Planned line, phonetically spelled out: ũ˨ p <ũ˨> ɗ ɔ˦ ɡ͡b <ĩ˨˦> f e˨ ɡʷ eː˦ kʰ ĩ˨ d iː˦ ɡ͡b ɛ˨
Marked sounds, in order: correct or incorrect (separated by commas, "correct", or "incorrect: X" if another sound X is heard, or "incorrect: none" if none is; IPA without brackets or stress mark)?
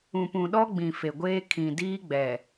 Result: correct, incorrect: ĩ˨